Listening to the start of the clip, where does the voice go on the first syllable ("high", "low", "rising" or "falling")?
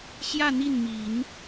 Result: falling